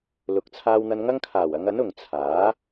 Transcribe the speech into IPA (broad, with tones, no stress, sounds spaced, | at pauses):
l ʊ˨˥ k̚ t͡sʰ aː˧ w n̪ ɐ˧ n ŋ ɐ˥ ŋ kʰ aː˨˩ w ɐ˨˧ ŋ ɐ˨˥ n ʊ˨ ŋ t͡sʰ aː˨˥